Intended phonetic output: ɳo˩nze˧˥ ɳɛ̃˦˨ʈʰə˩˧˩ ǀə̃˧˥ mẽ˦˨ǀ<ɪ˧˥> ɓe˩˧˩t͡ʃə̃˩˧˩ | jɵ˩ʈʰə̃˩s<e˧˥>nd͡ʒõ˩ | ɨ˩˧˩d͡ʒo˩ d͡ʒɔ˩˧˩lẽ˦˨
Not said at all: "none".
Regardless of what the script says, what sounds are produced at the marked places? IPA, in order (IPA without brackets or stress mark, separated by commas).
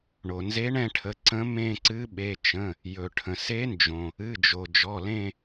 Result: ɨ˧˥, e˧˥